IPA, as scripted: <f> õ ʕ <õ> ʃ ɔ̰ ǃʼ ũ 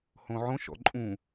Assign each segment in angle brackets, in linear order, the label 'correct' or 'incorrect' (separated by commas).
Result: incorrect, correct